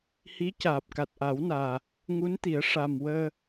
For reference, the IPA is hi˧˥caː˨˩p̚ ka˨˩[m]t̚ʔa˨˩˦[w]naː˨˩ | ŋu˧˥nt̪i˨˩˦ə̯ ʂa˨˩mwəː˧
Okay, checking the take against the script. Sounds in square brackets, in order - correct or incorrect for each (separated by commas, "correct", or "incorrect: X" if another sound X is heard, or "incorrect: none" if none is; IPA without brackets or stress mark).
incorrect: none, correct